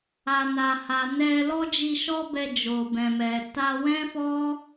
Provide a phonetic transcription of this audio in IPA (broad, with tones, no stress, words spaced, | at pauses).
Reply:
a˨na˨ha˨ nɛ˧ lɔ˦d͡ʒi˧ʃɔ˦bɛ˧ d͡ʒo˨bɛ̃˨mɛ˨ ta˧ wɛ̃˦fɔ˦